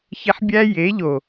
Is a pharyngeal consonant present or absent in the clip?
present